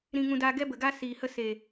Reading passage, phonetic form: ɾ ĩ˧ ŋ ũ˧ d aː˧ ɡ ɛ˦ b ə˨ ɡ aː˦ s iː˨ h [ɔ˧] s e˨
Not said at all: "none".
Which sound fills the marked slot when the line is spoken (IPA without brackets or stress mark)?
ə˧